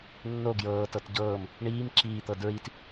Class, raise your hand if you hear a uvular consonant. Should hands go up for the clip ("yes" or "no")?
no